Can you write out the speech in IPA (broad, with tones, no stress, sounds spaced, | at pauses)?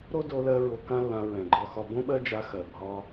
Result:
ɾ o˥ d o˧ l ɜ˧ ɹ o˧ k ã˥ lː ã˧ ɹ ɛ̃˩ ɡ͡ǃ ɒ˧ x ɒ˧ b õ˥ ɓ ɜ˥ d͡ʒ a˧ x ɜ˩ bʱ ɒ˧